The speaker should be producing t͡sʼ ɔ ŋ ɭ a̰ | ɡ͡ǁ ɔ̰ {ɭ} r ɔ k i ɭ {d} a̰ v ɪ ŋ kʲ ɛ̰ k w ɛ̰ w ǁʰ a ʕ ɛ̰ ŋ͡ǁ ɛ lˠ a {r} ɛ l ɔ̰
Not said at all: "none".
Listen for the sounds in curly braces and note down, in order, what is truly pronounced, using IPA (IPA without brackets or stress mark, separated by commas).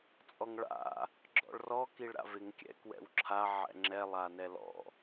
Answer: ɭ, ɾ, n